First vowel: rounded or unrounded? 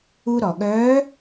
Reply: rounded